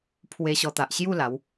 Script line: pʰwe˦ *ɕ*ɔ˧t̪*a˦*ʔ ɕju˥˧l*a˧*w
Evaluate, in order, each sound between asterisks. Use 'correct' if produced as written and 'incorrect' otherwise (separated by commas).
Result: correct, incorrect, incorrect